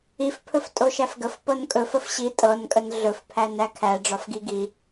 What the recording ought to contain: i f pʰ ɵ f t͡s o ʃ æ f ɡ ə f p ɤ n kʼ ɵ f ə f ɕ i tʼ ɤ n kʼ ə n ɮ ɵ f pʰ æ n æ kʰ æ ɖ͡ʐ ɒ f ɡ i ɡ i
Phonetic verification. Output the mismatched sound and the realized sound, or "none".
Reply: t͡s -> tʼ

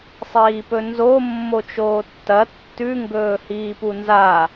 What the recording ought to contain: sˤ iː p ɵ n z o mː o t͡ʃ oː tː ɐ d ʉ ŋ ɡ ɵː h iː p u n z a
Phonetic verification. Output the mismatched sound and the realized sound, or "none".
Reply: d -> tː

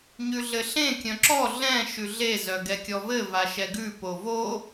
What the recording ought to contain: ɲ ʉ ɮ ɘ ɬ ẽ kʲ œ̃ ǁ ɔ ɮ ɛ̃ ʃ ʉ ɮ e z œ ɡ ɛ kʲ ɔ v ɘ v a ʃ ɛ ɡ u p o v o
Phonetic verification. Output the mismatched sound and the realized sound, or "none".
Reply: u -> ʉ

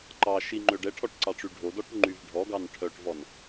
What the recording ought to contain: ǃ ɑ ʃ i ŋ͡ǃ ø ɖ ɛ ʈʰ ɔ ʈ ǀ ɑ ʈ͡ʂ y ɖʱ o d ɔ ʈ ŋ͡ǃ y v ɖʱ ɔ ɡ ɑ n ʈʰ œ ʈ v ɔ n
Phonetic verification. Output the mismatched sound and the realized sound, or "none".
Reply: none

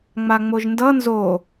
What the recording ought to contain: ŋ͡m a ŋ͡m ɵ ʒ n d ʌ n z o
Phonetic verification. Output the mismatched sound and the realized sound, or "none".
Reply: ɵ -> o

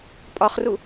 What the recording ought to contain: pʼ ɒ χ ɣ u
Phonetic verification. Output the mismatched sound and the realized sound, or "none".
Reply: ɣ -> r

